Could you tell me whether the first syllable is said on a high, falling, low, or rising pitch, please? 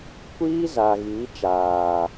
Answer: high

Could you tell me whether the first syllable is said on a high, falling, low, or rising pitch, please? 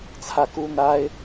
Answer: falling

